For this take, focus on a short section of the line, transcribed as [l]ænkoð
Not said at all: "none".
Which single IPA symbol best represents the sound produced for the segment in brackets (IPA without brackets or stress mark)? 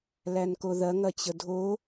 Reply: l